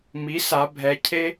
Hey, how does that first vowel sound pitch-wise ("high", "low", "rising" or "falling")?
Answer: rising